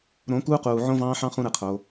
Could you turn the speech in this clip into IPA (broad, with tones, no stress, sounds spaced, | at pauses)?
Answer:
ɾ õ˨˦ k uː˧ q uː˨ ʕ õ˧ v ɑ̃ː˧ ħ ɑ̃˧ χ ũ˦ ɾ ɯ˧ qʰ o˧